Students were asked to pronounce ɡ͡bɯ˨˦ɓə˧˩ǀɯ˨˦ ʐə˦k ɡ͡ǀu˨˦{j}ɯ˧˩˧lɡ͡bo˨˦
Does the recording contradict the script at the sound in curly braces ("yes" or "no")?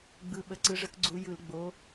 no